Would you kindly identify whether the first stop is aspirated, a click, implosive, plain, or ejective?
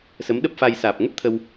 implosive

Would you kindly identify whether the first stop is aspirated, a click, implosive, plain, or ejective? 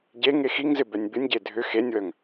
plain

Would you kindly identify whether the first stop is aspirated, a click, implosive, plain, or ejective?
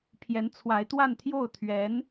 aspirated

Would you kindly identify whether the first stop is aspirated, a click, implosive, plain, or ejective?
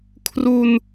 aspirated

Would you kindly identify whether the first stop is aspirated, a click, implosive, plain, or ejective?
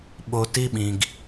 implosive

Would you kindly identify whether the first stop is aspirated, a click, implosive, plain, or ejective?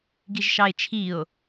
plain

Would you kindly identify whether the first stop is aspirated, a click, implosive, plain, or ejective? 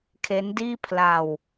aspirated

